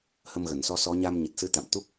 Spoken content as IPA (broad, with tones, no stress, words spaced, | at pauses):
hə˧mɣə˧˩nsɔ˧ sɔ˨˦ɲa˧m ɲə˨˩t̚sɨ˨˦ t̪a̰˧˨mt̪u˦˥k̚